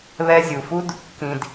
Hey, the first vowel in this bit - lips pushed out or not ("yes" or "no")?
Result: no